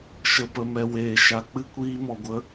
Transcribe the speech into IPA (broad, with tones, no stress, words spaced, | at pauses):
ʃə˨pə˨mɛ˨ weː˨ʃa˨k͡pɨ˦ kʷiː˧mɔ˨ɡʷə˧